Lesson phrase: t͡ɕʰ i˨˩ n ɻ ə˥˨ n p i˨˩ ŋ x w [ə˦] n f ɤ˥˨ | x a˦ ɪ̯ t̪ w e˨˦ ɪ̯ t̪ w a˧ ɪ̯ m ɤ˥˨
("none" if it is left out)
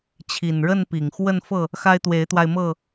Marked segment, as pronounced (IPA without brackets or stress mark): ə˥˨